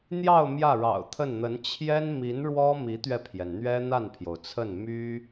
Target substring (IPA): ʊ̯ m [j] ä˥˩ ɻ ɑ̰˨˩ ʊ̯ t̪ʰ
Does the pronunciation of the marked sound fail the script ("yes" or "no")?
no